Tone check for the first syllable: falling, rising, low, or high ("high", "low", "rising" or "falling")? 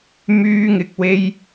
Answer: high